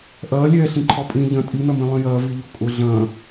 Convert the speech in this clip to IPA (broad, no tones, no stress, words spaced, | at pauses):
ʔɐːlʲɛːɬĩ ǃʰɔpʼĩ ʎɐ̃ tʼinɐmĩ lˠĩjɐː viʎokʼʊ ɮɐ̃